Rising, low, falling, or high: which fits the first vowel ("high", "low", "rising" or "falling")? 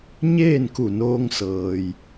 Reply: falling